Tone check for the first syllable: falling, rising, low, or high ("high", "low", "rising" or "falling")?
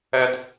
high